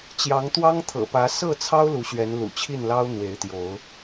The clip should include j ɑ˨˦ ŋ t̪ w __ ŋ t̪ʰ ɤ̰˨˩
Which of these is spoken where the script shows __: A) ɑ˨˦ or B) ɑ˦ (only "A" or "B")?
B